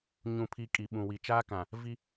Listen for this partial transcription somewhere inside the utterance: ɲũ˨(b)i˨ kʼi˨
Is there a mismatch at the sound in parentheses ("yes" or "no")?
yes